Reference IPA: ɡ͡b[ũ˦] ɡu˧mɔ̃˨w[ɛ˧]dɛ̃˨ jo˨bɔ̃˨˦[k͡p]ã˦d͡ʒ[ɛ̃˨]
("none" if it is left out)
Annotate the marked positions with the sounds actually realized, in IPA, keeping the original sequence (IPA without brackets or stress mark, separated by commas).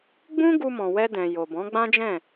ũ˦, ɛ˧, ɡ͡b, ɛ̃˦˨